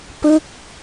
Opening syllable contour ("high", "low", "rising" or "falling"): falling